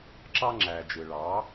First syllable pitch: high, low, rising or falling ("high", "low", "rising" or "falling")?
high